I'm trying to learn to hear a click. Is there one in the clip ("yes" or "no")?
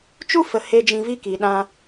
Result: no